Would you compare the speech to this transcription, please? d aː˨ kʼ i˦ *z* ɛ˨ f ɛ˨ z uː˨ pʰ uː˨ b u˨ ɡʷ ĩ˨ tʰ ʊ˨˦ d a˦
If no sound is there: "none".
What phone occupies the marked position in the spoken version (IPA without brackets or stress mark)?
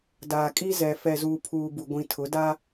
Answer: z